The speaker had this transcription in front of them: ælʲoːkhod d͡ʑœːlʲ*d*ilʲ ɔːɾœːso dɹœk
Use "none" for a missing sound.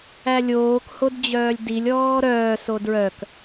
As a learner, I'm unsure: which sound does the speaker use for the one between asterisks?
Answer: d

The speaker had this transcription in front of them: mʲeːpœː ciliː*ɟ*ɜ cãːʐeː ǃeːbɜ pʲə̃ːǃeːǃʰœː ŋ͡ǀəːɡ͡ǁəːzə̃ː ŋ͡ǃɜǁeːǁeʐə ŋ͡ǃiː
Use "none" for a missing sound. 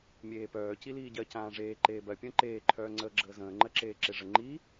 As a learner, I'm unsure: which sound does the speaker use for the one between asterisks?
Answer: ɟ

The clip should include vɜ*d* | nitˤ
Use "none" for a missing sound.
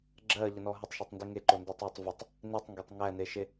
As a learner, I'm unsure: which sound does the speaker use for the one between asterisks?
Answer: tˤ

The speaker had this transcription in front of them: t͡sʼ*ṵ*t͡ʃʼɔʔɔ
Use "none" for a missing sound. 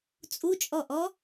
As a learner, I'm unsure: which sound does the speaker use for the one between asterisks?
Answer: u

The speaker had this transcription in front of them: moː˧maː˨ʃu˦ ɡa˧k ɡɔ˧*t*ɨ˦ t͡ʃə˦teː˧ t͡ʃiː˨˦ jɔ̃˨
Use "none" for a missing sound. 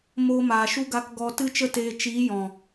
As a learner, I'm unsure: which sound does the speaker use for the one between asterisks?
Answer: t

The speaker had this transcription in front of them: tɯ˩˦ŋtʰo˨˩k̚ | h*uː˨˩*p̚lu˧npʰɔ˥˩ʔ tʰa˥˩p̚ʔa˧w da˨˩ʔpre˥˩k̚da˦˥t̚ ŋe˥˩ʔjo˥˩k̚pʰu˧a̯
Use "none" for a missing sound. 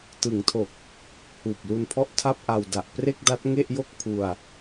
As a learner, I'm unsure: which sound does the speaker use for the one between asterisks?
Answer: uː˨˩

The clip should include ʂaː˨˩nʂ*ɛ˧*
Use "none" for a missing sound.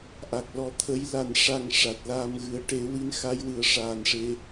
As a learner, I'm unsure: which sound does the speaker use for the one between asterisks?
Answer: e˧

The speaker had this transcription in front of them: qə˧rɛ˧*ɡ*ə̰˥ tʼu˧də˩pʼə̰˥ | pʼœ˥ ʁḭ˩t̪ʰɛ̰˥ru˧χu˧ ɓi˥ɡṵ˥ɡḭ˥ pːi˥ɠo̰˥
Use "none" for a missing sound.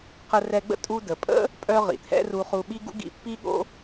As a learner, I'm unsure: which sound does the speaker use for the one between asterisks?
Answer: ɡ͡b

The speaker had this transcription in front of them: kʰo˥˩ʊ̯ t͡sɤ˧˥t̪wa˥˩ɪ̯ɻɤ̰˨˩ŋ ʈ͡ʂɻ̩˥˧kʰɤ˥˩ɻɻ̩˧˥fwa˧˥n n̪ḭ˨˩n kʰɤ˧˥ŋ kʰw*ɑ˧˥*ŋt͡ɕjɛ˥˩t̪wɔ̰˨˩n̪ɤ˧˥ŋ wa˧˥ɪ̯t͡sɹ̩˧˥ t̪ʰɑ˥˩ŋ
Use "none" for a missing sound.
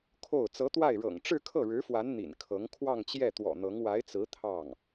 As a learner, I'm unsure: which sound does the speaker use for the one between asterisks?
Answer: ɑ˥˧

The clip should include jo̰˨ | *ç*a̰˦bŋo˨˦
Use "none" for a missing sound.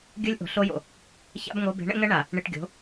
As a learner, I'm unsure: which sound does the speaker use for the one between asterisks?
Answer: ç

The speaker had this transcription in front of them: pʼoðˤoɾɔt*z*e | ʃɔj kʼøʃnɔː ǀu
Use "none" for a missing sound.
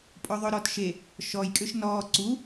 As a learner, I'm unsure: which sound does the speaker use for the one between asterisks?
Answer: ʃ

